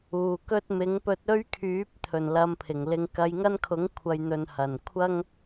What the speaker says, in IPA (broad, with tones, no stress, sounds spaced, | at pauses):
uː˨ k ɵ˥ t̚ m ɪ˨˥ ŋ p ɵ˧ t̚ ɵ˥ ɥ kʰ yː˨˥ p̚ t̪ʰ ɵ˨˩ n l ɐ˧ m pʰ ɪ˨˩ ŋ l ɪ˧ ŋ k ɐ˨˧ j ŋ ɐ˥ n kʰ ʊ˨˥ ŋ kʷʰ ɐ˨ j n̪ ɵ˨ n h ɐ˨˩ n kʷʰ ɐ˥ ŋ